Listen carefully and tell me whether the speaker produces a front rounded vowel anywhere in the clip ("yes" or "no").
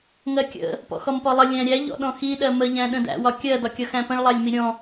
no